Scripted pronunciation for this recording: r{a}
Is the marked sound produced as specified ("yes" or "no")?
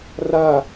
yes